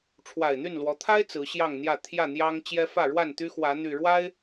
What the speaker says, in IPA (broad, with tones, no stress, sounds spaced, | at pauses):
ʈ͡ʂʰ w a˨˩ ɪ̯ n̪ y˥˨ n l w ɔ˨˦ t̪ʰ a˦ ɪ̯ t͡s ɹ̩˨˦ ɕ j ɑ˥˨ ŋ n̪ j ä˥˨ t̪ʰ j ä˥˨ n̪ j ɑ˦ ŋ t͡ɕ j ɛ˦ f ä˥˨ ɻ w a˥˨ n t̪ y˦ x w ä˨˦ n̪ y˨˩ ɻ w a˦ ɪ̯